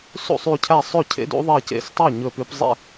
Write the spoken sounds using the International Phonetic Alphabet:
sṵ˥˩sˤy˧˩cʰæ˥˩ sˤø˥˩cʰḛ˨˥dṵ˨˥ ðˤɛ˧˩cḛ˧˩stˤæ˥˩ ɲɵ˧˩pʉ˨˥p zˤḛ˥˩

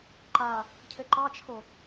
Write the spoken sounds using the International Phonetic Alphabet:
ǃa | cʰɘǃɑt͡ʃʰo

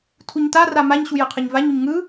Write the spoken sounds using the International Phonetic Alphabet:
tʰuɲtara maɲɕu jɯqʰɯɲvaɲuɲ ŋɯ

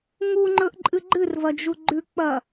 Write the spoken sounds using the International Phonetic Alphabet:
ŋuŋ͡ǃɵʔǃʼɨ ɡ͡ǃɨrvɐd͡ʒu ɡ͡ǃʉk͡pɐ

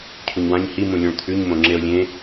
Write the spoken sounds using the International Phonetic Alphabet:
cʰuɲwãɲ hi mũlʲũɭt̪ʰʉɲ mõŋ͡ǁeo̯lʲẽ

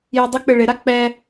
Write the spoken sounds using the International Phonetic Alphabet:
judˤʊk͡pɪ ɭɪɾa k͡pɛ

